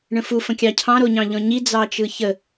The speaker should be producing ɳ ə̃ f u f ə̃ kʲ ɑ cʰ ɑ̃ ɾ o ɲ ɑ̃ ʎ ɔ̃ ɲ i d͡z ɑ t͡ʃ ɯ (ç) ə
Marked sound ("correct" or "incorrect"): correct